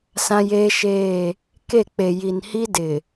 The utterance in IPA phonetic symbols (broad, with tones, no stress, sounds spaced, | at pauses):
s ã˦ j eː˦ ʃ eː˦˨ | k e˦˨ k͡p e˨ j i˨ n h i˦ d ɪ˨